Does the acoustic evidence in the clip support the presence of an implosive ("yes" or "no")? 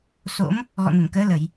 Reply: no